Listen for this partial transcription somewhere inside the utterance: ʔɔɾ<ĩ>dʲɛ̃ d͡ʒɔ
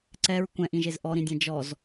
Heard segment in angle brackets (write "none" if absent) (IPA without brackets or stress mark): ĩ